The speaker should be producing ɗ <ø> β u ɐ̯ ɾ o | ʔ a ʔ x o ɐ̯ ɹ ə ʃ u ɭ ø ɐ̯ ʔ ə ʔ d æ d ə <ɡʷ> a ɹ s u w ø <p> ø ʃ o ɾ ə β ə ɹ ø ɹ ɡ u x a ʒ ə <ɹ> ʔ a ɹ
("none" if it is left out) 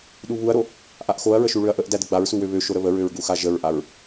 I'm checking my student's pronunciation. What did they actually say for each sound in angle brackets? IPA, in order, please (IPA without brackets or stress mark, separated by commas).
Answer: u, ɡ͡b, β, ɹ